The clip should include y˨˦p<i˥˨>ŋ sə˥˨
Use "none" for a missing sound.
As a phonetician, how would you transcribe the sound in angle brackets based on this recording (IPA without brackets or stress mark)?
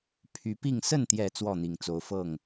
i˥˨